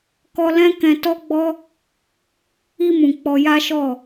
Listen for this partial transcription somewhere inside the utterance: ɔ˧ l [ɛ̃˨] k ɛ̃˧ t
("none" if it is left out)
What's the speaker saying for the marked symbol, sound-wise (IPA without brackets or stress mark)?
ɛ̃˦